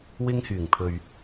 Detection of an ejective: absent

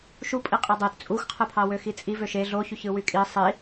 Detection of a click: absent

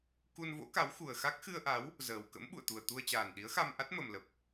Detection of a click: absent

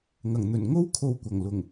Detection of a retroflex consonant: absent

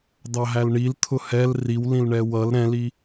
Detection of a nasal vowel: present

